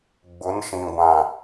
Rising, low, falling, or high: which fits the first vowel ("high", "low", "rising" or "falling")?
rising